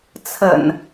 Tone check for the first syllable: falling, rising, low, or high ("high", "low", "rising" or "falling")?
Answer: low